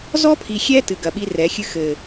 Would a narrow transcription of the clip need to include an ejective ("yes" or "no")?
no